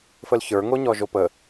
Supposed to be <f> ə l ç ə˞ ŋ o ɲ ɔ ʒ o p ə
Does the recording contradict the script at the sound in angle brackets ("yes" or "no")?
no